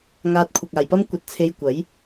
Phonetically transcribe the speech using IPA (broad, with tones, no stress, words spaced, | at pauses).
ŋaː˧t̚kʷʰɐ˨k̚aː˨jpɐ˥m kʷɐ˧t̚t͡sʰe˧jkʷɐ˨˥j